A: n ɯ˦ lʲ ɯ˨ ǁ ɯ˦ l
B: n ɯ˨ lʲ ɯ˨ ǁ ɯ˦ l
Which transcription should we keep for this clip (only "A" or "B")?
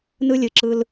A